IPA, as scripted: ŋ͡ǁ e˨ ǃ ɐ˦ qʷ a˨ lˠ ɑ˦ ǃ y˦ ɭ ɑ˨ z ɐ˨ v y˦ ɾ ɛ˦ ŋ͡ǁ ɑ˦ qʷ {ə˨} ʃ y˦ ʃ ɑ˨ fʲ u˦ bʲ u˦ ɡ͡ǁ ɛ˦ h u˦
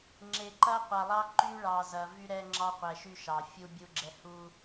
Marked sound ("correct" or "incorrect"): incorrect